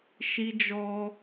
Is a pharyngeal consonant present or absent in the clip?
absent